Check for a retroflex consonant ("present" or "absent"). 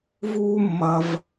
absent